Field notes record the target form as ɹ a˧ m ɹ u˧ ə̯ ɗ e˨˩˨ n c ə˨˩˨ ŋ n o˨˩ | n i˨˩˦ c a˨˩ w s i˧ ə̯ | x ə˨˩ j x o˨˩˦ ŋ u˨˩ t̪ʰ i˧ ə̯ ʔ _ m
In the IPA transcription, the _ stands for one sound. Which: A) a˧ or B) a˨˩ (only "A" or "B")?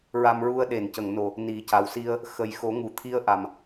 B